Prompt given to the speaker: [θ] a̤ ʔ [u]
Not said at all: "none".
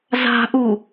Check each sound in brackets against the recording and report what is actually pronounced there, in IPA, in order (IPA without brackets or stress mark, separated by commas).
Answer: z, u